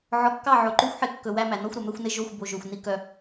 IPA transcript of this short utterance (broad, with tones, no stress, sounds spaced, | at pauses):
ʕ ɔ˨ kː ɑ˦˨ ʕ o˨ ǃ ʉ˦ xʷ ħ e˦ kː ɵ˨ w æ˦ m æ˨ n ɔ˦ xʷ ɾ ɵ˨ m ɛ˦ xʷ n e˦ ʒ o˦˨ xʷ b o˨ ʒ ø˨ xʷ n i˦ k œ˦